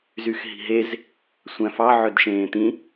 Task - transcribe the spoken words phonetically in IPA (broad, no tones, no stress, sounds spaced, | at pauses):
z y x ɦ i̤ ɦ e z | sʷ æ̃ f ɑ ʕ ø d ʃ ẽː t̪ ĩ